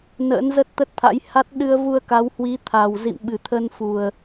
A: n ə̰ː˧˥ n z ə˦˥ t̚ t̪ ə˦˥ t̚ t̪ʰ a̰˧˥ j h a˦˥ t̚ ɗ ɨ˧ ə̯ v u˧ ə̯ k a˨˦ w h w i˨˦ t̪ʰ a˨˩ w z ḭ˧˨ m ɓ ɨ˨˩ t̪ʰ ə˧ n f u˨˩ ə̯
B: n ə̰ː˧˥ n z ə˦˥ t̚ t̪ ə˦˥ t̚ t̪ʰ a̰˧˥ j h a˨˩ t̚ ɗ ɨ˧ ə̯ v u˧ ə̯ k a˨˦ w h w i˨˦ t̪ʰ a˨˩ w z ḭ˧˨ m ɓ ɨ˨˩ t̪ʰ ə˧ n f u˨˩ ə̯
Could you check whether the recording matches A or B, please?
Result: A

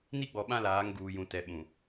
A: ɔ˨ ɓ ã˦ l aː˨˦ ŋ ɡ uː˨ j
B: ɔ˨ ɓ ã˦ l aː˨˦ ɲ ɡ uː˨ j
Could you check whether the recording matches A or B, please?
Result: A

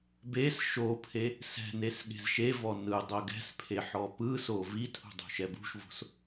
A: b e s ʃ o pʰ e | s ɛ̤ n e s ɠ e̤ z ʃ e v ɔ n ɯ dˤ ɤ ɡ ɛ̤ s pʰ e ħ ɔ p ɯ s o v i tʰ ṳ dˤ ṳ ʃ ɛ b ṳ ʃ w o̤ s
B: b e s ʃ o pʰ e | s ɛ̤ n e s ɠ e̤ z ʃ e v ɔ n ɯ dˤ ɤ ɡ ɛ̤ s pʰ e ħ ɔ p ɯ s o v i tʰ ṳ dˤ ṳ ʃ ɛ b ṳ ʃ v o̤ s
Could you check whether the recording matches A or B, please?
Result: B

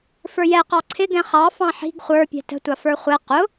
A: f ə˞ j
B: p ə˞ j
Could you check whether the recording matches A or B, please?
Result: A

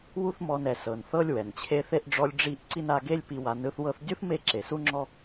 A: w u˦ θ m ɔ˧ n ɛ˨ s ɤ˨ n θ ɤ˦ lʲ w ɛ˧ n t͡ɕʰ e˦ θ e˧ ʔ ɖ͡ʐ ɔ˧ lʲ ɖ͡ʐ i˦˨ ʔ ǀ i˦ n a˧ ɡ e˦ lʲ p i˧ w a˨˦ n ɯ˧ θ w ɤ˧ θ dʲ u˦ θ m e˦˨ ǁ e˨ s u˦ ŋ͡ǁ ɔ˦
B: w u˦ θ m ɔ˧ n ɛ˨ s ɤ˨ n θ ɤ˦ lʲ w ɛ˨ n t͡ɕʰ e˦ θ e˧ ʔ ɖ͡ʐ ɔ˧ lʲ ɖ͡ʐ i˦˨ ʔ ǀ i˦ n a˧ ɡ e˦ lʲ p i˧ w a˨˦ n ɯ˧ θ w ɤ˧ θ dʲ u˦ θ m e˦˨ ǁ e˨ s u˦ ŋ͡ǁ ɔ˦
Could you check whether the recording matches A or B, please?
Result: B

